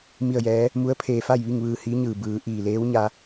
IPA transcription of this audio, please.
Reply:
m i˥˨ ə̯ j ɛː˧˥ | m u˧˥ ə̯ pʰ eː˧ f a˥˨ j ʋ i˥˨ ŋ ʋ ɯː˧ h iː˧˥ ɲ ɯː˧˩ b ɯː˩˧ ʔ iː˧˩ l eː˧˥ w ɲ a˧

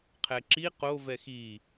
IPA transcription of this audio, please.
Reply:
qʰ ɛ ǁ i q o v ɛ x i

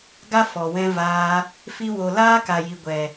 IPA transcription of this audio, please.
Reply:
ɡ a˦ f ɔ˨ w ɛ̃˧ v aː˧ | f i˧ w o˨ l aː˦ k a˨ j i˨ ɡʷ ɛ˨

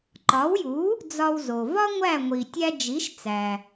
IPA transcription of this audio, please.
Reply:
ǃ ɒ˩˥ w j u˩˥ | d͡z ɒ˧ w z o˩ v ɒ˥ ŋʷ æ˥˩ ŋʷ i˩ tʲ æ˧ d͡ʒ i˩˥ ʃ t͡s æ˩

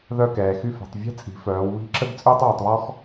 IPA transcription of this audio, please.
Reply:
ð œ˥˧ k ɛː˩˧ x y˥˧ f ɛ̤˩˧ tˤ vʲ ɛ̤˥ t͡sʼ i̤˩˧ f œː˩˧ w β i̤˥ ǁ ə˥ ɡ t͡sʼ ʏː˥ tˤ w ø˩˧ tˤ β ɔ˥ x

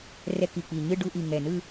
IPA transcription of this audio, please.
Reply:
r ɛ˧˥˧ k i˨˩ k͡p i˨˩ ɲ ɯ˥˧ ɖ u˧˥˧ ʔ i˨˩ ŋ ɛ˨˩ n ɯ˥˧

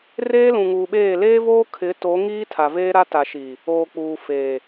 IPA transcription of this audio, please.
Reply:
r eː˦ l ũ˨ ŋ uː˨ ɓ eː˦˨ l eː˦ v oː˦ kʰ ɪ˨˦ t o˨˦ ŋ iː˦ tʰ a˨ v eː˦ ɾ a˦ t a˨ ʃ iː˨ | oː˨ k͡p uː˨ f eː˨

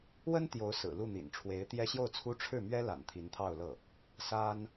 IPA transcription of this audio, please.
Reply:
w ə˥ n t̪ j o˧˥ ʊ̯ s ɹ̩˨˩ l u˥˩ n̪ ḭ˨˩ n ʈ͡ʂʰ w e˧˥ ɪ̯ t̪ j ɛ˥ ɕ j o˥˩ ʊ̯ t͡sʰ u˥ ʈ͡ʂʰ ɻ̩˥˩ m ɥ ɛ˥ l a̰˨˩ n t̪ʰ i˧˥ n t̪ʰ ɑ˥˧ ʊ̯ l ɤ˥˩ | s a˥ n

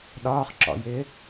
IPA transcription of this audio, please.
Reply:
ɗ ɒː χ ǁ ɔ̰ j ɪː

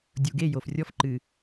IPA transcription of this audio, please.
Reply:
dʲ u˨ ɡ e˦˨ j o˨ f rʲ ɔ˦ f ǃ ɨ˨

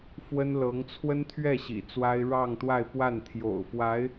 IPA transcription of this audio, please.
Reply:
f w ə˥ n l ɤ˧˥ ŋ t͡sʰ w ə˥ n t̪ʰ ɥ ɛ˥˩ ɕ ḭ˨˩ t͡s w a˥ ɪ̯ ɻ ɑ˥˧ ŋ t̪ w a˥˧ ɪ̯ p w a˥˩ n t̪ʰ j o̰˨˩ ʊ̯ f w a˧˥ ɪ̯

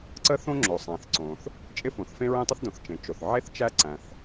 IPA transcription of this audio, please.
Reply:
ǀ ə˥ θ õ˥ ŋ͡ǁ o˩ sˤ æ̃˩ θ ǀ õ˩ θ | t͡ʃʼ ɪ˥ f õ˩ θ f ẽ˥ ɹ ẽ˥ tˤ ɪ˥ θ d õ˩ θ t͡ʃ ẽ˩ t͡ʃ o˩ θ ʕ e˥ θ t͡ʃ æ˥ ǀ æ̃˩ θ

